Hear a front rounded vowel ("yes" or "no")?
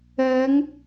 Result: no